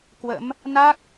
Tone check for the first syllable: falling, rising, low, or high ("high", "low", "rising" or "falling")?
rising